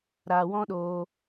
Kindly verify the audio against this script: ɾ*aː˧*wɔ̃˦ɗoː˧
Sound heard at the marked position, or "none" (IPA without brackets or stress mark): aː˧